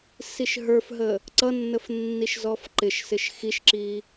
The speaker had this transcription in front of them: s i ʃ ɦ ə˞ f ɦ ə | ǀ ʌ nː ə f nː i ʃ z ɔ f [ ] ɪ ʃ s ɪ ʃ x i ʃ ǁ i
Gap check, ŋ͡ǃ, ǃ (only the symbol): ǃ